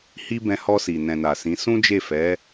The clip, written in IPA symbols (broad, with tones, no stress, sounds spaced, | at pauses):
h i˧ b ɛ̃˧ h ɔ˧ s i˨ n ɛ̃˨ n a˨ s ĩ˨˦ s ũ˦ d͡ʒ e˦˨ f ɛ˨˦